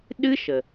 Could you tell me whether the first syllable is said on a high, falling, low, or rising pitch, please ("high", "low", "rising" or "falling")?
high